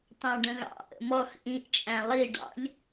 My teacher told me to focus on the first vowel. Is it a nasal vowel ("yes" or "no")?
yes